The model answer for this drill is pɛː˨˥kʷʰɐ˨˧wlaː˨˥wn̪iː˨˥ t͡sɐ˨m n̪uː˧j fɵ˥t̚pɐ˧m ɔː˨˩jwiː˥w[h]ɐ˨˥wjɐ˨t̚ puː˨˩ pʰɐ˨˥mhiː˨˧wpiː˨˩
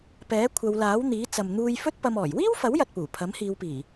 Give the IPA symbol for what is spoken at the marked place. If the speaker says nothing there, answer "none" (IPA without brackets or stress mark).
f